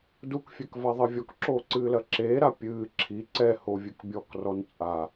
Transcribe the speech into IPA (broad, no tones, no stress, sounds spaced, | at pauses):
d u k fʲ ɛ k v a ðˤ ɘ vʲ ɔ k ǁ oː ǀ ɨː l ɐ ǁ eː ɾ a pʲ ɨː ǁʰ i ǀ ɛ h o vʲ ɨ k bʲ ɔ k r ɔ n t͡sʼ a